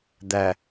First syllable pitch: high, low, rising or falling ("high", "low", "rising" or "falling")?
low